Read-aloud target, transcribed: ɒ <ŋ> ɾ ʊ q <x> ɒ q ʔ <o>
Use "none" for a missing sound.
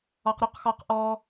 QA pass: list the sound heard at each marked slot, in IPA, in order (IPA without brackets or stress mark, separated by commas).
q, x, ɔ